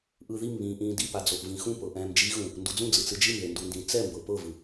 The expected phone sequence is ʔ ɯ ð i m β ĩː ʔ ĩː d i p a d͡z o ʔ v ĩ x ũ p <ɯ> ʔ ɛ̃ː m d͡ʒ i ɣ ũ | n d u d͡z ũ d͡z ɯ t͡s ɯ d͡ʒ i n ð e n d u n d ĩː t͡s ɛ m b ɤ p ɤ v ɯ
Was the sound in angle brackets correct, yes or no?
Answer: no